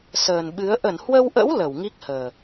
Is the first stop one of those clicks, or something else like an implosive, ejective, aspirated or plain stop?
implosive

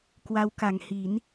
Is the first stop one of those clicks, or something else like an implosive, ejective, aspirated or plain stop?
plain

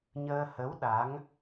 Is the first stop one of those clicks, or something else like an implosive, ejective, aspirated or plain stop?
implosive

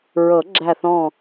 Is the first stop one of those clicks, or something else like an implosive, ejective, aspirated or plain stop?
click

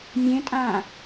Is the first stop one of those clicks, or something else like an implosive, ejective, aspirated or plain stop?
ejective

